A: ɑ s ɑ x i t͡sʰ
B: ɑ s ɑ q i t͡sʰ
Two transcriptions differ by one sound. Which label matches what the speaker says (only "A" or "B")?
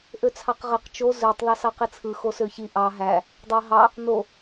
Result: B